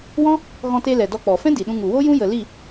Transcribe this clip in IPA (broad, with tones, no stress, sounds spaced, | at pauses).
w ɔ̃˦ | ɣ ɔ̃˧ t e˧ l ɛ˨ d ɔ˧ k͡p ɔ˨ f ɛ̃˦ d i˨ ɗ ũ˧ ŋ u˨ w o˦ j ũ˦ j ə˧ l i˦˨